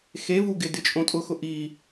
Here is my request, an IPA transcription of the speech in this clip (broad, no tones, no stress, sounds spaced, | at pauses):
x e v u ɡ ɪ d ɪ t͡ʃʼ õ tʼ ʊ x ʊ ʔ i